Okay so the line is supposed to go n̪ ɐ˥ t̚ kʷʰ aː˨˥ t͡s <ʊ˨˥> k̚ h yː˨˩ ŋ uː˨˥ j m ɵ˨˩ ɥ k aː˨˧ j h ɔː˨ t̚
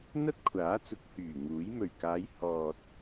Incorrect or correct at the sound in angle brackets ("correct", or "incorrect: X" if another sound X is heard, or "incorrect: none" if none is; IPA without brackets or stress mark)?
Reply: correct